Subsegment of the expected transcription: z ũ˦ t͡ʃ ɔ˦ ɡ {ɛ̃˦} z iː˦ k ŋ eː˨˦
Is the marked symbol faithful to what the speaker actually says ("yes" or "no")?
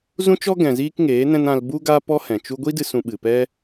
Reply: no